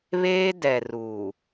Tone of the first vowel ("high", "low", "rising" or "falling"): high